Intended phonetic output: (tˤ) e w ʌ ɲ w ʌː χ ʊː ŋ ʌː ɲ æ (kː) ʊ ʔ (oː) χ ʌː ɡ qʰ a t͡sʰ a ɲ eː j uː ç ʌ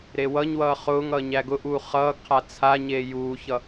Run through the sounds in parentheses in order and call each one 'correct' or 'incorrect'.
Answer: incorrect: ɾ, incorrect: ɡ, incorrect: uː

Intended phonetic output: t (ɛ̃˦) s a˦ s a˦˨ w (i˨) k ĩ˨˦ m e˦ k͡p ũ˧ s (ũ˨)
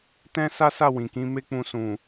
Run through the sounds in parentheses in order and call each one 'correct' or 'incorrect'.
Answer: correct, incorrect: ĩ˨, correct

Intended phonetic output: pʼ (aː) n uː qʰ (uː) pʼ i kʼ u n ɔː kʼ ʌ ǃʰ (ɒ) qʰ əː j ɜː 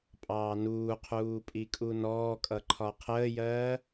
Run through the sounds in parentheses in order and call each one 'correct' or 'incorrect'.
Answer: incorrect: ɑː, correct, correct

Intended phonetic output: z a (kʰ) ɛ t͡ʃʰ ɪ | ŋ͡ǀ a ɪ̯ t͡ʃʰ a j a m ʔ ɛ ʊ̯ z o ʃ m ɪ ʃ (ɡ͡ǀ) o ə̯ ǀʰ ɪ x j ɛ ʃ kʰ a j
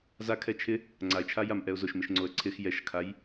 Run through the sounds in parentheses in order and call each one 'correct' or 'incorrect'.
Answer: correct, incorrect: ŋ͡ǀ

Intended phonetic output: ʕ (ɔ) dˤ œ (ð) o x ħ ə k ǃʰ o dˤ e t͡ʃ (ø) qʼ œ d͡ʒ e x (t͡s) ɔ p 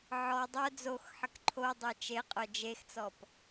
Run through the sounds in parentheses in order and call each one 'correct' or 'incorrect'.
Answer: correct, incorrect: d͡z, incorrect: e, correct

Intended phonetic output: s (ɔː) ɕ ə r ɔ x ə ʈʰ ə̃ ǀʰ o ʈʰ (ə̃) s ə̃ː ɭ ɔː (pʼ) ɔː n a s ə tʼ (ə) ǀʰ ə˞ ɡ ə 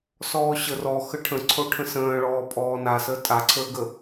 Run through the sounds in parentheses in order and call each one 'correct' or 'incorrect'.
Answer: correct, correct, correct, incorrect: a

